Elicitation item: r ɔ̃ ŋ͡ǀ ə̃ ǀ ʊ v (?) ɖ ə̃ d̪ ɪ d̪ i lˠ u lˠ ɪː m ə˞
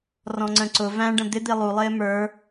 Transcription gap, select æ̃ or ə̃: æ̃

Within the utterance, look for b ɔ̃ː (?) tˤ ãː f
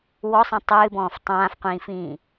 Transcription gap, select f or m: f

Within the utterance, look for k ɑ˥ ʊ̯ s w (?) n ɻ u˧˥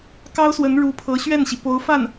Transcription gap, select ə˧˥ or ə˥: ə˧˥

